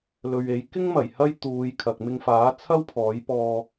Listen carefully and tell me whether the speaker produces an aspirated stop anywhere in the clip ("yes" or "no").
yes